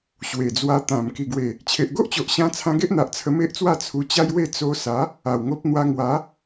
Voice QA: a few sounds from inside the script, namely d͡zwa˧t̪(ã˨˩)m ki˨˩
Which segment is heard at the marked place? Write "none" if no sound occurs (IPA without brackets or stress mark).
ã˨˩